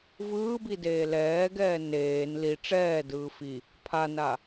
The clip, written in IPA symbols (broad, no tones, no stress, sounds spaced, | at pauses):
v ɯː b i d eː l ɛː ɡ ɛː n eː n l i ʈ͡ʂ ɛː d ɯː f i | pʰ a n a